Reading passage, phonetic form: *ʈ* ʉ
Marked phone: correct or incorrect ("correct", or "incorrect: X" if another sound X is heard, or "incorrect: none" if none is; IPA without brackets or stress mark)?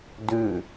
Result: incorrect: d